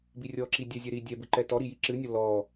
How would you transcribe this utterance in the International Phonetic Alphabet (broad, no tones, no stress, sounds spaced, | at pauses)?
b i rʲ ɔ ǁ i dʲ ɛ zʲ ɛ ɾ i dʲ ɛ b ɨ ǃ ɛ t ɔ ɾ i j i ǁ ɨ nʲ ɔ l ɔ